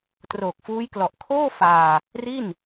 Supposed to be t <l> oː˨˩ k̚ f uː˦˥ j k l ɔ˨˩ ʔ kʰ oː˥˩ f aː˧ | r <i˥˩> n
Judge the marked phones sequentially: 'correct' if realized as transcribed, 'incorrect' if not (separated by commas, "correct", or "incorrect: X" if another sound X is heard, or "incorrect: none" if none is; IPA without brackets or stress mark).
incorrect: r, correct